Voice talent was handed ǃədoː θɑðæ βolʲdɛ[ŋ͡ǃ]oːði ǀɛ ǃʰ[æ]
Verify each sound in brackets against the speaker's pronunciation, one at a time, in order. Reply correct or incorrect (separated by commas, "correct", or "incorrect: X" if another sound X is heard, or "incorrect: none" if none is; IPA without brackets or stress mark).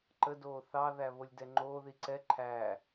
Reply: correct, incorrect: æː